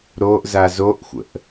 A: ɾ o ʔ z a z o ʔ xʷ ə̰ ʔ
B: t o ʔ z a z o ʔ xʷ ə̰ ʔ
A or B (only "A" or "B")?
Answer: A